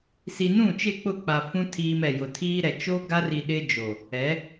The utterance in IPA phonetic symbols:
s i˨ n ũ˦˨ t͡ʃ ɪ˦˨ k͡p ʊ˦˨ k͡p a˨ f ũ˦ tʰ iː˦ m ɛ˨ j ʊ˨ tʰ iː˦ ɾ ɛ˨ t͡ʃ o˦ ɡ a˦ r i˨ ɗ ɪ˦ d͡ʒ o˨ | ɛ˨˦

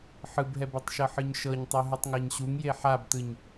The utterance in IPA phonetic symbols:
ħ ɯ b ɦ ɛ b i tˤ ʃ ɤ ħ ɯ ɲ ʃ ɤ ɲ tˤ u ɦ ɯ tˤ ŋ a ɲ ɕ u ŋ j e ħ a b t ɯ ɲ

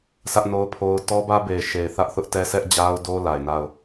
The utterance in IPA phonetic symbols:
sʰ ä˦ ʔ n o˦ ʊ̯ pʰ o˦ ʊ̯ t ɔ˦ b ä˦ b e˨ ɪ̯ ʃ e˨ ɪ̯ θ ä˦ ʔ θ ʊ˦ ʔ t ɛ˦ s ɛ˦ ʔ d͡ʑ a˦ ʊ̯ d o˦ l a˨ ɪ̯ n a˦˨ ʊ̯

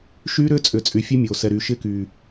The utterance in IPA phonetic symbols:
ʃ yː˦ ɾ ʏː˦ t͡sʼ ʏː˨ t͡sʼ y˨ fʲ e˦ mʲ oː˨ s ɛ˨ ɾ yː˨ ʃ ɪː˦ k yː˨

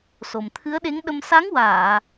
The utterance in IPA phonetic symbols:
s o˨˩ m t̪ʰ ɨ˧˥ ə̯ ɗ e˧˥ ŋ ɗ ə˧ m s a˧˥ ŋ w aː˨˩˨

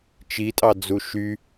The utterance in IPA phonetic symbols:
t͡ʃ i tʼ ɑ d͡z u ʃ y

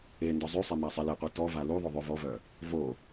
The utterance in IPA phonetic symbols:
e n d ɔ zˤ y sˤ e m a sˤ e l e qʷ i t ɔ v a l u ðˤ o ðˤ ø v ɔ v œ | v o

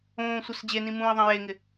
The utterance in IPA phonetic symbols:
õː sʷ œ s d͡ʑ e n ĩ m ũː i̯ ðˤ ẽ j e ŋ ɪ

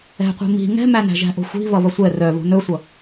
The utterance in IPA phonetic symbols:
ɛ̤ qʷ i̤ m i̤ ŋ ɛ̤ m æ n æ̤ ʒ æ̤ ʔ o̤ xʷ i̤ β ʌ β ʌ sʷ ɛ r œ β o̤ n ɵ sʷ ʌ

